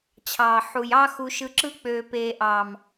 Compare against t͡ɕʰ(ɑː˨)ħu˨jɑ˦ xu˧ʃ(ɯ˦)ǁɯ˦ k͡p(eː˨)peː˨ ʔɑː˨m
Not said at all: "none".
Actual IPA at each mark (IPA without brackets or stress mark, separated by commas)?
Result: ɑː˨, ɯ˧, øː˨